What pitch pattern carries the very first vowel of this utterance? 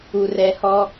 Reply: low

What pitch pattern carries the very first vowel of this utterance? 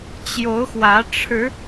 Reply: rising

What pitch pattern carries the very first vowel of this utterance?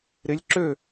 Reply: rising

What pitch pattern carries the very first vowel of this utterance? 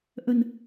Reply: low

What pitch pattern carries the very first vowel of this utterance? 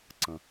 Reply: low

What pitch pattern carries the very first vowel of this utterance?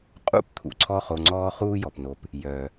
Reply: falling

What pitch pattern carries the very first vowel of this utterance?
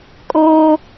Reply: high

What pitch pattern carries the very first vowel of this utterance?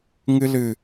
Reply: high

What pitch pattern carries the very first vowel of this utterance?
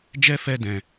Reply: high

